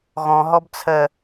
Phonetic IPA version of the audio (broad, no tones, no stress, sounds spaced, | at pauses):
ɣ ɔ̃ ɦ ɔ b t͡sʰ ɜ